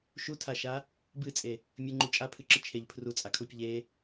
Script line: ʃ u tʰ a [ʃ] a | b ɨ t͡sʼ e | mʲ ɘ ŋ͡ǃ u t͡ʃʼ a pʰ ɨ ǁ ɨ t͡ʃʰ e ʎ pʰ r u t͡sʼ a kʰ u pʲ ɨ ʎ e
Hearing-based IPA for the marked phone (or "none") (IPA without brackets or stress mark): ʃ